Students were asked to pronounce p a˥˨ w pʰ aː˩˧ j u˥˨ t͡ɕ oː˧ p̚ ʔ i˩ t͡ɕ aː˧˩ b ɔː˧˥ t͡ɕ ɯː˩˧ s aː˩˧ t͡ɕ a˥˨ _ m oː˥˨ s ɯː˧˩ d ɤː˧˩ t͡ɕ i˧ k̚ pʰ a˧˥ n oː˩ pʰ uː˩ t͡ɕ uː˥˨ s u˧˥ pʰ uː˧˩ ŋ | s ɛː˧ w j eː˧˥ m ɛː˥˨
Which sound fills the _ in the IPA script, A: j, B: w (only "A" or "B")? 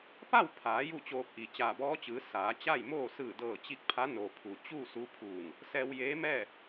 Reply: A